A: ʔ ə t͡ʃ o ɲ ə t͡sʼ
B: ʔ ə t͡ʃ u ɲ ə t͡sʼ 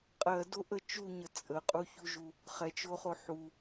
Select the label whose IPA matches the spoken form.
B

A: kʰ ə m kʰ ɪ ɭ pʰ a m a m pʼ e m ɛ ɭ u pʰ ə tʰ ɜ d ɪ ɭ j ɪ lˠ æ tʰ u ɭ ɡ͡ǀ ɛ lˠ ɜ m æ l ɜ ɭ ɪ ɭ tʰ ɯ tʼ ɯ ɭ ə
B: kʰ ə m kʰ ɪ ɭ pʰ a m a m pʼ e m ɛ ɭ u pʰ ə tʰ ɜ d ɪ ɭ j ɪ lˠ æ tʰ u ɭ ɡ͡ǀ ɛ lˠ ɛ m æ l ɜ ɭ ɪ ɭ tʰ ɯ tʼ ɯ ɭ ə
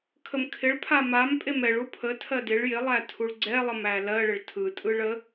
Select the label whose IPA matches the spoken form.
A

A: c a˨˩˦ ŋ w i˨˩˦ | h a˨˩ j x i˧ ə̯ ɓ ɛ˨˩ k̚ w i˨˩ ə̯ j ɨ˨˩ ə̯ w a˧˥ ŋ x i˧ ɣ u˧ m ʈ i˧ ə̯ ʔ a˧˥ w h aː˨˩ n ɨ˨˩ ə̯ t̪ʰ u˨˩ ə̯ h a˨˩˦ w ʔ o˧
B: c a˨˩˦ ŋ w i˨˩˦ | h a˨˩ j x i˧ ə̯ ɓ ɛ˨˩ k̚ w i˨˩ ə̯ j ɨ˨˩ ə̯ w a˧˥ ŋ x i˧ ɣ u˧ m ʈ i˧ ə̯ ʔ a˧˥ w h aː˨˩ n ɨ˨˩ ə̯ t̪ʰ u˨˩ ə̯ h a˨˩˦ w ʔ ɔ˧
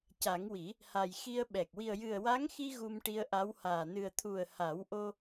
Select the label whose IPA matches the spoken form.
A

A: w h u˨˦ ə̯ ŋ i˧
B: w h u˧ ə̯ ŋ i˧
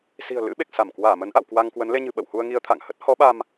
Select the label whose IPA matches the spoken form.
B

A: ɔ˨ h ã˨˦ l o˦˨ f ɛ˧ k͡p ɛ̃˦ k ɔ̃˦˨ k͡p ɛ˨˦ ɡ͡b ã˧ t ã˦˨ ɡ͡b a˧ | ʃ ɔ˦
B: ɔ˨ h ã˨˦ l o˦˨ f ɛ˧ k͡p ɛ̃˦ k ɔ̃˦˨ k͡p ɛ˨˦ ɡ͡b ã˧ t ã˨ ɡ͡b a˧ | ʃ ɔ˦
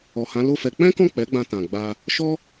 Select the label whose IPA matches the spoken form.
B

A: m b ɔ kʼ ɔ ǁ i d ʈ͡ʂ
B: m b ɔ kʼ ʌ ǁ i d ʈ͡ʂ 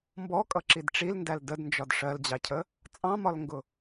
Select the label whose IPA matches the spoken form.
B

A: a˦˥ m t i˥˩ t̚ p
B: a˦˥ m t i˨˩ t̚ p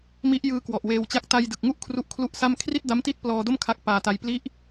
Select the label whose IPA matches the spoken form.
A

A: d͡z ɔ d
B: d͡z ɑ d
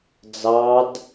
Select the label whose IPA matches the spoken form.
B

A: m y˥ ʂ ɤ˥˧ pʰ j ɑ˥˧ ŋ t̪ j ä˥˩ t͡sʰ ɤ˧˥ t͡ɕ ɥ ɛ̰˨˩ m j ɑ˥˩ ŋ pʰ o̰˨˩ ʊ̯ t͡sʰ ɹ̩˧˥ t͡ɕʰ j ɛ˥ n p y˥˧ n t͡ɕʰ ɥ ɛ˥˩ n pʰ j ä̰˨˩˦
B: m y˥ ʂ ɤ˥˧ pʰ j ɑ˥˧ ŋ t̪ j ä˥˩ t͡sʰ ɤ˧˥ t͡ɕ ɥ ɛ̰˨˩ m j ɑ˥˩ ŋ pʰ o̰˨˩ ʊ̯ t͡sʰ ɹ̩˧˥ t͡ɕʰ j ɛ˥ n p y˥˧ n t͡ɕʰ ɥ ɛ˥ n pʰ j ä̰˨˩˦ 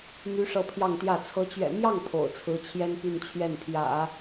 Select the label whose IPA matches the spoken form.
A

